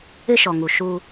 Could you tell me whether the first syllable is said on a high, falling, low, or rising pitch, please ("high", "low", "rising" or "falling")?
high